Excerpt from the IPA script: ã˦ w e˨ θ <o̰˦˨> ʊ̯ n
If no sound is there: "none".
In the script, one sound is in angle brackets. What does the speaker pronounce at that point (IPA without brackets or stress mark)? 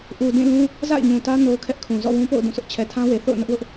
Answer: o̰˦˨